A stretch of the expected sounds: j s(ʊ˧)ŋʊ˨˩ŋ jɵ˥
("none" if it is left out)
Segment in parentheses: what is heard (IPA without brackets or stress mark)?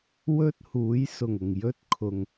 ʊ˨˩